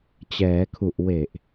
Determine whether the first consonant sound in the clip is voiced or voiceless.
voiceless